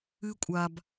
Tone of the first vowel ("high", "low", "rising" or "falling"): high